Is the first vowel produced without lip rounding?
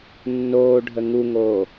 no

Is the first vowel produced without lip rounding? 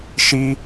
yes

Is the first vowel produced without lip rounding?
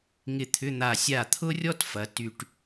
yes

